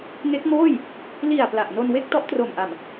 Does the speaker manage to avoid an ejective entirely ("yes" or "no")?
yes